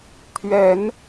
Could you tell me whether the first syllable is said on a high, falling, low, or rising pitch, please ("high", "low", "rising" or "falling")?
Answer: low